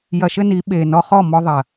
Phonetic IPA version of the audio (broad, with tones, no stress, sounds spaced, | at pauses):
j ɐ˧ ʃ ɘ˦ n i˨˦ ɓ e˨ n ɔ˧ χ ɔ˦˨ m ɔ˧ ðˤ ɐ˨